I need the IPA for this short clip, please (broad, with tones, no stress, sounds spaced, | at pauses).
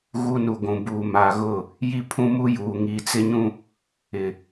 ɣ u˦ n u˨ ɡʷ ũ˨ b uː˨ m a˨ ɣ ʊ˦˨ | j i˦ pʰ ũ˦ m u˦ j uː˨ ŋ iː˨ t͡s ɪ˦ ɲ ũ˦ | ɪ˨